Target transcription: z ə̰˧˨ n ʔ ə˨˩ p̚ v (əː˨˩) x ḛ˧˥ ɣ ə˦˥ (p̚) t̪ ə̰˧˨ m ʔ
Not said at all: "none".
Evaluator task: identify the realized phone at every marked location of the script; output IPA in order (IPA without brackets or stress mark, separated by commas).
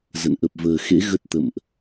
əː˨˩, t̚